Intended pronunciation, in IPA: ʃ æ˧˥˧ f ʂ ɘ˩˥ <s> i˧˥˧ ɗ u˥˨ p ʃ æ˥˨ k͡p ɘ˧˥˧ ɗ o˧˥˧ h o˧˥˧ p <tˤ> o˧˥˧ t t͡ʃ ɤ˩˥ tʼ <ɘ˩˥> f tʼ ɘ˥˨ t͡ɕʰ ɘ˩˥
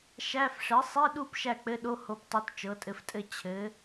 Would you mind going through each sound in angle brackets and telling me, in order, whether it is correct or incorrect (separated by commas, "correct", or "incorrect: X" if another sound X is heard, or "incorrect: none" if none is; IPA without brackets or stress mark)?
incorrect: sˤ, correct, correct